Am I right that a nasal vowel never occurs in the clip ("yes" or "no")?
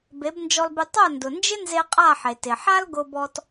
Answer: yes